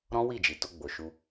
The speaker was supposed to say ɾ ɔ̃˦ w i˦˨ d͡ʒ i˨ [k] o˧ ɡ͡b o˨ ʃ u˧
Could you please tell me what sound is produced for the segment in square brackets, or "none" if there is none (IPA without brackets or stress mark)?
t